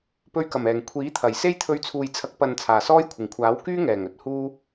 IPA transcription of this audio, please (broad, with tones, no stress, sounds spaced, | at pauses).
p ɵ˧ ɥ k ɐ˨˩ m ɛː˨˩ ŋ kʷʰ iː˨˥ t̪ʰ ɐ˨˩ j s e˥ j t̪ʰ ɵ˧ ɥ t͡sʰ uː˨ j t͡sʰ ɐ˨˥ k̚ p ɐ˨ n t͡sʰ aː˨˩ s ɔː˥ j kʷʰ ɪ˨˩ ŋ kʷʰ aː˨˥ w k yː˥ ŋ ɛː˨˩ ŋ ɵ˨ t̚ h uː˥